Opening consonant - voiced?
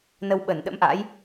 yes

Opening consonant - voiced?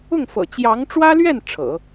yes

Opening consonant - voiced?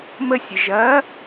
yes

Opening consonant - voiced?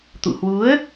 no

